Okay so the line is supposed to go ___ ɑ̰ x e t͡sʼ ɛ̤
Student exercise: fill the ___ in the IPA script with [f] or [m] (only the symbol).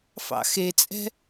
f